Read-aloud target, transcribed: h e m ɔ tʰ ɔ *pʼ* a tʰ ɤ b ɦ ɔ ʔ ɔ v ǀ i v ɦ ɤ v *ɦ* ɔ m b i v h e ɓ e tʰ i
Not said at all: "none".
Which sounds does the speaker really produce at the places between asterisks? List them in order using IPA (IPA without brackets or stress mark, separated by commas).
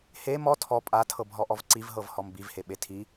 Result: pʼ, h